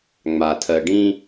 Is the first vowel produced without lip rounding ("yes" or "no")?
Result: yes